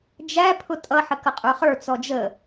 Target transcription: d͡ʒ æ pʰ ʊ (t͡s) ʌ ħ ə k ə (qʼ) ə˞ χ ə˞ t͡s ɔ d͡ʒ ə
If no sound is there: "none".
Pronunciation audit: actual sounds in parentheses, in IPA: tʼ, qʼ

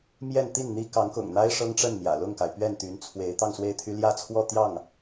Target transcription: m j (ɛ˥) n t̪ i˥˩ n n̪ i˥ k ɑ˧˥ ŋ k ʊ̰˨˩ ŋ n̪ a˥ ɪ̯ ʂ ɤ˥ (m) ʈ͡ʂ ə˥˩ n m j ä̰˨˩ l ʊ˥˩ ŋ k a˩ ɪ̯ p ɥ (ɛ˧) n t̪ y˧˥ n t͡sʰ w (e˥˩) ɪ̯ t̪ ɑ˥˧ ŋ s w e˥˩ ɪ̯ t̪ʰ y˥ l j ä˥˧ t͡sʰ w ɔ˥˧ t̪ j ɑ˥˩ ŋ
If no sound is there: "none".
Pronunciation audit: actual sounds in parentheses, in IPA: ɛ˥˧, ŋ, ɛ˥˩, e˧˥

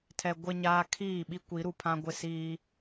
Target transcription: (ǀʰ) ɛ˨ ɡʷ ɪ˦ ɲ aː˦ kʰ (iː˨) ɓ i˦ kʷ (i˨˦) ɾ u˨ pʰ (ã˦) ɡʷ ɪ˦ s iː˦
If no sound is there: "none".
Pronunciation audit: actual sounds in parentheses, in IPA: tʰ, iː˦˨, i˨˦, ã˦

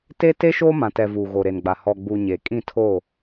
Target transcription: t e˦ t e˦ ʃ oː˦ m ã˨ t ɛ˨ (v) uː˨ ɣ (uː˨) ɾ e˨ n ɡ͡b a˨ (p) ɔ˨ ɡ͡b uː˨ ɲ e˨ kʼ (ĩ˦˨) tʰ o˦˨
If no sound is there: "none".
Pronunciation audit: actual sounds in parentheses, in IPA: v, oː˨, h, ĩ˦˨

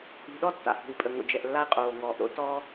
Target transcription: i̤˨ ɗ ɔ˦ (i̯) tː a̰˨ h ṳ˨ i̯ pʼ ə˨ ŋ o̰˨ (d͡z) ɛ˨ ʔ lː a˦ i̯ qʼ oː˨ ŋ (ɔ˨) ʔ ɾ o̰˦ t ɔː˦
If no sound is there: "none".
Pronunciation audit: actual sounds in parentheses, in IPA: none, d͡ʒ, ɔː˨

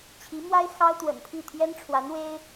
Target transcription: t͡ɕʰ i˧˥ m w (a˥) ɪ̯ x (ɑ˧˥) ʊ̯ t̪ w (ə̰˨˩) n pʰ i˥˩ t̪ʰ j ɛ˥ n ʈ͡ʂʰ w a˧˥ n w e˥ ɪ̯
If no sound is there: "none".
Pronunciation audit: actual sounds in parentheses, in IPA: a˥, ɑ˥, ə̰˨˩

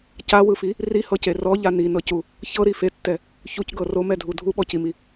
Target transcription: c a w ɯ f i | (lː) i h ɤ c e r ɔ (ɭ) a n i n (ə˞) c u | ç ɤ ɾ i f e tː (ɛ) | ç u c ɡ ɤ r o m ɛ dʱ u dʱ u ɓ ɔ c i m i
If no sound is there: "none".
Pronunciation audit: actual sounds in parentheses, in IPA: r, ʎ, ɤ, ɛ

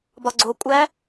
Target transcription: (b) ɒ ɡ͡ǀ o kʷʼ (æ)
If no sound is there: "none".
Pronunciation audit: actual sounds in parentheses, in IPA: b, æ

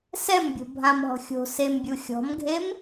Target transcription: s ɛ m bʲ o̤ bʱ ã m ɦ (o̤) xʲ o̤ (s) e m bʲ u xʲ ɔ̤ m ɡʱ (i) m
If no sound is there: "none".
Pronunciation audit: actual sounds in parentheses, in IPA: ɔ̤, s, e

